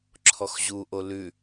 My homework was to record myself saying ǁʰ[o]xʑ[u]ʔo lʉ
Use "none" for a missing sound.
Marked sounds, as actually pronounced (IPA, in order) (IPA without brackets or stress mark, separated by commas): ɔ, u